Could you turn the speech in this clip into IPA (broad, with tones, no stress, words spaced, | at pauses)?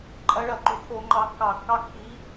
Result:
ǃʼɐ˨˦ɭɐ˧˩˧ǃo̤˨˦ ʈʰo˧˩˧ŋ͡ǃɑ˨˦kːɑ˧˩˧kːɑ˦ kːi˨˦